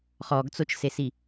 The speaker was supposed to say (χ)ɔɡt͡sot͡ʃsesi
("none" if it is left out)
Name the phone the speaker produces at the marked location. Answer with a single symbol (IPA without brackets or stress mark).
χ